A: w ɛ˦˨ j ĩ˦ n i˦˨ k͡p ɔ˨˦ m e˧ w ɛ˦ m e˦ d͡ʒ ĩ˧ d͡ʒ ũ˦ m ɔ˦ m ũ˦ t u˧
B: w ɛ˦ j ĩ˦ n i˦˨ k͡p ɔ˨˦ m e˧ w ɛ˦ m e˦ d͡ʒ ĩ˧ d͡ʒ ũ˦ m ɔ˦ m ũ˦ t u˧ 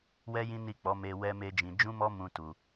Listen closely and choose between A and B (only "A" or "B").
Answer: B